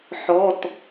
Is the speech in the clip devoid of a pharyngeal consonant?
no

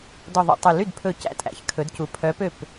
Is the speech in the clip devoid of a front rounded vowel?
no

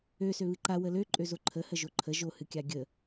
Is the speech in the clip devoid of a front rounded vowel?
no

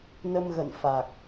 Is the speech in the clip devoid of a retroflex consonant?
yes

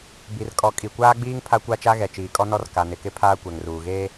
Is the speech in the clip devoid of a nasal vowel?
yes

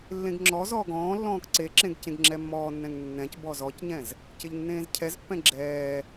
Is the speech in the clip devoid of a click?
no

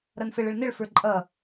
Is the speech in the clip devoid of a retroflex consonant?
no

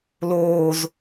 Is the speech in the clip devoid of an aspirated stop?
yes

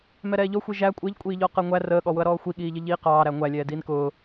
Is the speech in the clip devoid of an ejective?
no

